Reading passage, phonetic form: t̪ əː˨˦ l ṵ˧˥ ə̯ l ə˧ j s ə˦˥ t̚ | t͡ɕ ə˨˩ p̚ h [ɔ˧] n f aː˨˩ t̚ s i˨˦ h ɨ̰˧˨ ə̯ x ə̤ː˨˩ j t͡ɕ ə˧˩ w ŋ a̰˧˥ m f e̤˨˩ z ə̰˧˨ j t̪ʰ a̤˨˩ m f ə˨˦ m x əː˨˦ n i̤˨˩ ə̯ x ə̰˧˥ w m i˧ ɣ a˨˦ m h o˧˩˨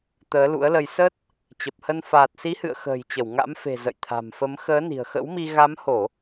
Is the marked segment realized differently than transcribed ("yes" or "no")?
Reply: yes